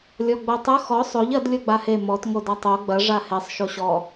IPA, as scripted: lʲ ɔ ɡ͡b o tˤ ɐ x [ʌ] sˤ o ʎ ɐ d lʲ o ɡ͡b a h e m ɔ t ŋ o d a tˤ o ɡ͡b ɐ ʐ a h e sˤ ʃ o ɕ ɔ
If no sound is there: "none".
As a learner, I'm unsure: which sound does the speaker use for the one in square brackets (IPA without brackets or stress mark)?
ɔ